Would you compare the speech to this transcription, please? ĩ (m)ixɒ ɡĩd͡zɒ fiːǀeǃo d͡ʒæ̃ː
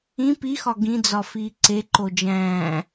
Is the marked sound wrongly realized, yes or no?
yes